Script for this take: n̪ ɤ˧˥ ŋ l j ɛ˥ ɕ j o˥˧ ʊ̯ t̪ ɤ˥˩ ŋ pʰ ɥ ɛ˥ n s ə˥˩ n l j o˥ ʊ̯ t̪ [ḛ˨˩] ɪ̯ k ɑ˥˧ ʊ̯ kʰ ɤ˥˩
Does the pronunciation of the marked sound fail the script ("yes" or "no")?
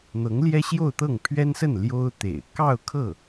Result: no